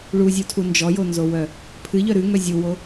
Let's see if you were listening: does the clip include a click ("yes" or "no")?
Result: no